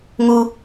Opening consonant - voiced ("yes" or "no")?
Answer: yes